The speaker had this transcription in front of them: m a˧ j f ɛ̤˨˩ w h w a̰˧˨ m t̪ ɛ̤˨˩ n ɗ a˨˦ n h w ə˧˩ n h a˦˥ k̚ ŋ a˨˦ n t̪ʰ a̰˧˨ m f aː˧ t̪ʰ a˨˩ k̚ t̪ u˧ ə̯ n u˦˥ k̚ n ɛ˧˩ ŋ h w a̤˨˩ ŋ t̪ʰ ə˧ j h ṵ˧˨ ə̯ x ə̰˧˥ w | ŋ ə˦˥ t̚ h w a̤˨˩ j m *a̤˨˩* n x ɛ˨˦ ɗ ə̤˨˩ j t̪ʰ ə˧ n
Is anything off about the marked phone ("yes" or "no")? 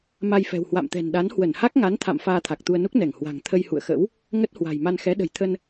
yes